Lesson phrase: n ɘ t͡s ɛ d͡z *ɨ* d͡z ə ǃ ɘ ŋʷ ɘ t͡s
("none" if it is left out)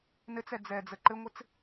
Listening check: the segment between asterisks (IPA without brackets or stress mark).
ɛ